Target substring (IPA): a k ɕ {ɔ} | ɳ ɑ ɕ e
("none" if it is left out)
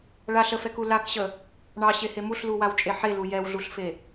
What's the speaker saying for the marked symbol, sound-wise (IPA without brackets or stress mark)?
ə